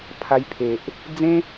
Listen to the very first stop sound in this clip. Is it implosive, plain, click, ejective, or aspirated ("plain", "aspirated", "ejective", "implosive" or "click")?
aspirated